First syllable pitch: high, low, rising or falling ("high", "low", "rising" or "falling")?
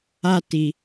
high